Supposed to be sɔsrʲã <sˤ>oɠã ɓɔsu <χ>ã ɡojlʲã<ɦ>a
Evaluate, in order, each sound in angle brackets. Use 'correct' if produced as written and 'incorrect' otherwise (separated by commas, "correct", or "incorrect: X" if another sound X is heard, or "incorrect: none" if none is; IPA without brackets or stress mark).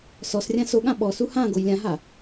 incorrect: s, incorrect: h, correct